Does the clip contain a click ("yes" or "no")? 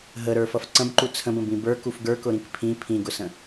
yes